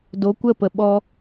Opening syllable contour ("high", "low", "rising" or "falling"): rising